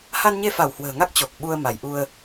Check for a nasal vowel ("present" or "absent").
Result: absent